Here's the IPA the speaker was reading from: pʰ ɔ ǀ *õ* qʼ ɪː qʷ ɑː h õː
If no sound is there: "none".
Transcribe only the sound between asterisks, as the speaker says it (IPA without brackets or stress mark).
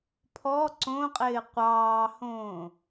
õ